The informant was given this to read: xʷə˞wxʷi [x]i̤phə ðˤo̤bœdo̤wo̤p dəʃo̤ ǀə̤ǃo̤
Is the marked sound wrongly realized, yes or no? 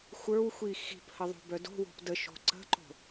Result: no